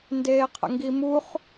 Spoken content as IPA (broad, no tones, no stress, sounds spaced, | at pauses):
n d eː qʰ ə̰ ŋ ɡ i m u χ